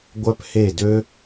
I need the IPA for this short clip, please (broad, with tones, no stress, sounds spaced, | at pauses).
ɡʷ œ˧ p h e˧˩ d ø˧